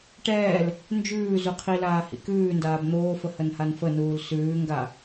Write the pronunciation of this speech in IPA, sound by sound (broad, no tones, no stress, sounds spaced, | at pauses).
ʈ ɛː l | n d͡ʒ ʉː z u qʰ i l aː h ḭ k ʉː n d aː b n̪ oː f ə h ə n h a n f ə n uː l s ʉː ŋ ɡ a